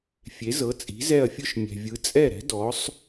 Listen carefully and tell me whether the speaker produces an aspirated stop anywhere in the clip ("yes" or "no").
no